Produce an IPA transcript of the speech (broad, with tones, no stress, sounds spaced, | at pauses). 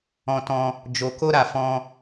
ɔ̃˦ t ɔ̃˦ | d͡ʒ o˧ k o˦ ɾ a˧ f ɔ̃˦